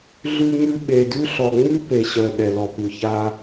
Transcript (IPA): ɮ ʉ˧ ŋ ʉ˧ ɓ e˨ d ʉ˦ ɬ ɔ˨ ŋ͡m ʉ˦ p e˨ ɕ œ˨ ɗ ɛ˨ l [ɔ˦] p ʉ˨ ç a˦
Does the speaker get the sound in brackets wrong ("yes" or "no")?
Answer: yes